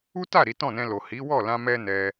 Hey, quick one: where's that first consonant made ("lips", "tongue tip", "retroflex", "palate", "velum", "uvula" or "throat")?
tongue tip